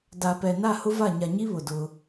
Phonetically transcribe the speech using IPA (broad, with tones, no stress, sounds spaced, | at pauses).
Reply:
d a˨ p ɛ˨ n a˦˨ h ʊ˦ v a˦˨ ɲ a˨ ɲ i˦ β ʊ˨ d ʊ˦